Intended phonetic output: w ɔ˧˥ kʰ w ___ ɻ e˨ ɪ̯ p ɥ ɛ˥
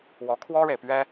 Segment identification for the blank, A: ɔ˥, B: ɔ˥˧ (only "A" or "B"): A